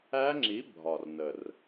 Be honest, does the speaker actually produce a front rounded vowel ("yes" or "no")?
no